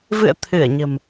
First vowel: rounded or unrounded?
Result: unrounded